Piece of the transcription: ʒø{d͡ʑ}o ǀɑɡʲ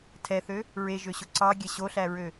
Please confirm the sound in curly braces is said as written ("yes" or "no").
no